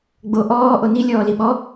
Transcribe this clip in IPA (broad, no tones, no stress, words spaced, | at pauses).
ɡ͡bo ʔɔː ʔoni lʲɔːliɓɔ